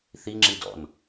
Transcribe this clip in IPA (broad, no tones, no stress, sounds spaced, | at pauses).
θ i ŋ͡ǁ i d ɔ̰ n